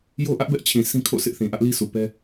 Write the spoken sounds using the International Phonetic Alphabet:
j o˦ ʔ ä˦ ʔ b ɛ˦ ʔ t͡ɕʰ ĩ˨ s ĩ˦ kʰ o̰˦˨ sʰ ɪ˦ ʔ θ ĩ˨ ʔ ä˦ ʔ l i˦ s u˨ p ɛ˦

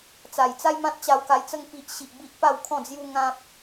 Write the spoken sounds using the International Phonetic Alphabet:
t͡s a˨˩ j t͡s a˦ j m ã˦ t̚ t͡ɕ a˧ w k a˧ j t͡s ə˦ ŋ p i˦ ʔ ɕ i˦ ʔ b i˦ ʔ p a˥˧ w kʰ ɔ̃˥˧ d͡z j u˦ ŋ ã˦ p̚

